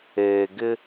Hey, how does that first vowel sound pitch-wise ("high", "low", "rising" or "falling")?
low